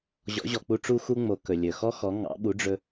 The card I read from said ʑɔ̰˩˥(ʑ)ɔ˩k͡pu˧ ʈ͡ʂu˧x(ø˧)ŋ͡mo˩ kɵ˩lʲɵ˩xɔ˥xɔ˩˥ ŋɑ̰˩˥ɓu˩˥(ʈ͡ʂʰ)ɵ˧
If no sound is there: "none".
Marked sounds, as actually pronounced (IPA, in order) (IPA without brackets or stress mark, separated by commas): ʑ, u˧, ɖ͡ʐ